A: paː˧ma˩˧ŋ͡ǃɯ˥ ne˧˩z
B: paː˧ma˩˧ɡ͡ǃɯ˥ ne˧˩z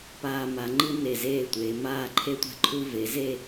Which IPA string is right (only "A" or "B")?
A